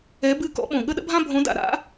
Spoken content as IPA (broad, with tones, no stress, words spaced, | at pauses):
ɛ˧˥bɨ˥˧ kɔ̰˧˥ɓõ˨˩ ɠə˥˧ɗə̰˥bʱã˥ bʱõ˧˥da̰˧ ɾa̰˧˥